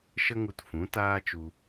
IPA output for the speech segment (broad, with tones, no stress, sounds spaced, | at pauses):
ʃ ə˦ ŋ u˧ t f ũ˨˦ t aː˦ t͡ʃ u˧